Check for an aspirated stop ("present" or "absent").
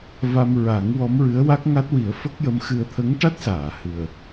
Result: present